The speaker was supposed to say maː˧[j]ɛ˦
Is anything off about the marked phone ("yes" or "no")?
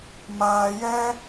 no